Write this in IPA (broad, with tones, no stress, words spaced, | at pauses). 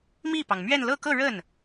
mi˥˩pɑ˩ŋmɥɛ˥˧n lɤ˥˧kɤ˥˧ ɻə˥˩n